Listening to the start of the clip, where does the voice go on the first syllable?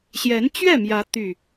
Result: rising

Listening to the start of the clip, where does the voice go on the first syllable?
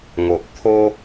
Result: low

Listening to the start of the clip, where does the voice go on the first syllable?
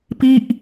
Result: falling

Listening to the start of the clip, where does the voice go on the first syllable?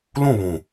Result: falling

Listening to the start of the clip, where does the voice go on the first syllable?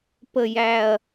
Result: low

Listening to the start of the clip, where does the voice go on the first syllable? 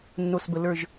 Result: low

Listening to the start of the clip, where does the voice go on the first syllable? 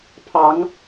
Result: rising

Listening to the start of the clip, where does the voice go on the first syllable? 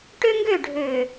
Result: high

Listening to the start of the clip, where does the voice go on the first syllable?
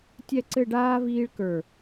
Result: falling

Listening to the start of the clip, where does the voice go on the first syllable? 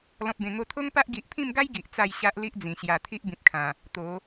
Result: low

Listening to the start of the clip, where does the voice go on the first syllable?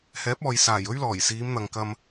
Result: rising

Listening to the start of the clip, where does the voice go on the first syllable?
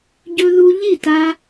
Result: high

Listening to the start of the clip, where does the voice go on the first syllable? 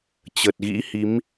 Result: low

